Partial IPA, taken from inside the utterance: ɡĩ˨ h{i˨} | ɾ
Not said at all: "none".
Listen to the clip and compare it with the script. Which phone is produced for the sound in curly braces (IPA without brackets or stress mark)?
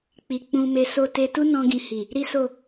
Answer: i˨